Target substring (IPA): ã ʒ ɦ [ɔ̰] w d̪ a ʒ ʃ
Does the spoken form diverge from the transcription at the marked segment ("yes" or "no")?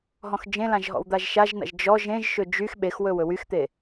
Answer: no